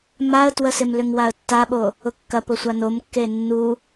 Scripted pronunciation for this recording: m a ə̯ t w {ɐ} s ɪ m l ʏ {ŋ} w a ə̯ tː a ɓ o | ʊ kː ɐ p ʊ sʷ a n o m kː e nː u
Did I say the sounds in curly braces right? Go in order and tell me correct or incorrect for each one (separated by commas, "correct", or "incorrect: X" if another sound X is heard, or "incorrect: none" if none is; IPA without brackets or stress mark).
incorrect: ə, correct